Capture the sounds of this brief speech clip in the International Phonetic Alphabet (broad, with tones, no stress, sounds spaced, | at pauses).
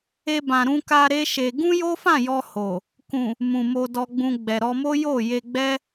e˧ b ã˨ ɾ ũ˧ k a˧ ɾ e˦ ʃ e˧ ɡ ũ˦ j o˦ f ã˦˨ j ɔ˧ h o˨ | k ũ˨ | m ũ˨ m o˧ d ɔ˧ ɡ͡b ũ˧ ɡ͡b ɛ˨ ɾ ɔ˧ m o˦ j o˦˨ j e˧ ɡ͡b ɛ˦